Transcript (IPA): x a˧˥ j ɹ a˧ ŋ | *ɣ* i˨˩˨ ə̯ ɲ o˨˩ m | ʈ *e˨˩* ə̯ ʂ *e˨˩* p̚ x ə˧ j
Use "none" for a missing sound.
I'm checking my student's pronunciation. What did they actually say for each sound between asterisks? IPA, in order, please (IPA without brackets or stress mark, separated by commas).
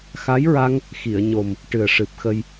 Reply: x, ɨ˨˩, ɨ˨˩